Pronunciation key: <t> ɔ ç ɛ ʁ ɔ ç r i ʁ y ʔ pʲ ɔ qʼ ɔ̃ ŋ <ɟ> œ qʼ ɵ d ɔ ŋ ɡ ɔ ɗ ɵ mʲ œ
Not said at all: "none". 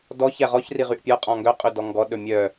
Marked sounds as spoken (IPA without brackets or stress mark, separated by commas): d, ɡ